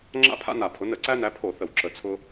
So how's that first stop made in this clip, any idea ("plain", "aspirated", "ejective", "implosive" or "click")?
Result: click